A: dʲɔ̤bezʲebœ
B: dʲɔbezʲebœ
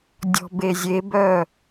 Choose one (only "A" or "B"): A